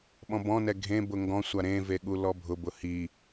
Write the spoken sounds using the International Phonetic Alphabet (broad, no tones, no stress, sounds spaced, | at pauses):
ɓ ɔ̃ b ɔ̃ n ɛ ɡʱ ẽ b ʊ ŋ ɡ ɔ̃ sʷ a ɾ ẽ v e ɠ u l ɔ bʱ ʊ b ʊ h i